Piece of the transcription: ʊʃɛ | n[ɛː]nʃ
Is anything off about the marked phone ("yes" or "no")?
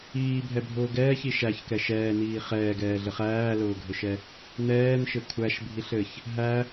no